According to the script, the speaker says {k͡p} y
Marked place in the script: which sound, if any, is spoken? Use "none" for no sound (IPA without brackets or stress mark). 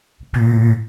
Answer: p